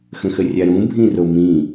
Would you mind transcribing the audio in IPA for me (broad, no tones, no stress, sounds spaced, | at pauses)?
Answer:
x ə̃ x ə rʲ a ɾ ũ bʱ ĩ r o m ĩ